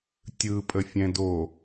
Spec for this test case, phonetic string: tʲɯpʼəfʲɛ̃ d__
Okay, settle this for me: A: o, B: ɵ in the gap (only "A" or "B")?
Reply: A